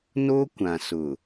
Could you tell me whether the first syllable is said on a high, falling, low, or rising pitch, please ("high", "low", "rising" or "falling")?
high